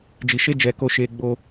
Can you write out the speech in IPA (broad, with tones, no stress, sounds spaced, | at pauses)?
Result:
d͡ʒ i˧ ʃ e˦ d͡ʒ ɛ˧ k o˧ ʃ e˧ ɡ͡b o˧